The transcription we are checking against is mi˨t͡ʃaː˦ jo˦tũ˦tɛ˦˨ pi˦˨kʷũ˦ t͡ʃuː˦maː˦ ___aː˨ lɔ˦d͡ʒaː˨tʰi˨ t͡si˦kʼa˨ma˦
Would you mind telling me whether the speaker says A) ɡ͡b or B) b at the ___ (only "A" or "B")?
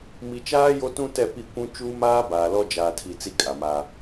B